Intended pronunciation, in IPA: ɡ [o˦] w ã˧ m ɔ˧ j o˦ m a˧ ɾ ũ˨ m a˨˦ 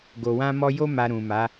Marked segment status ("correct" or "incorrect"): incorrect